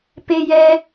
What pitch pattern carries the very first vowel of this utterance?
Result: high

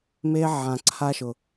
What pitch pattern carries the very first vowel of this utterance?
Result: high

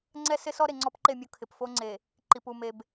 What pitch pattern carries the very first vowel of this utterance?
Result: high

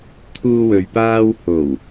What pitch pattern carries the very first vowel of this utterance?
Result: high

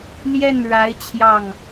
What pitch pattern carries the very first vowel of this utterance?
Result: falling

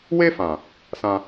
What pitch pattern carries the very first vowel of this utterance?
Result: high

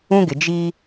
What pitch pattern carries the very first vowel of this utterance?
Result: high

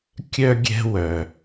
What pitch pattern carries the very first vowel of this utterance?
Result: high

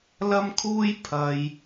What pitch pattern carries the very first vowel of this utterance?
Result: high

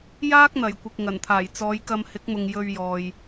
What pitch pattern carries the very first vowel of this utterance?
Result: high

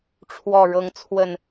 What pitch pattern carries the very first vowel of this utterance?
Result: low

